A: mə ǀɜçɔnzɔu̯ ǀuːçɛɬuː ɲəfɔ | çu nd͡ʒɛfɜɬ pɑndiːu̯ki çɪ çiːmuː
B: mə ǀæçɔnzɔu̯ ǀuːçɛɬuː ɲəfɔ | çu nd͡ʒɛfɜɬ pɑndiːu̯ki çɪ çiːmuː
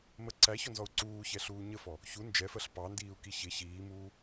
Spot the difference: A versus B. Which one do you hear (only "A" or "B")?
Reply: B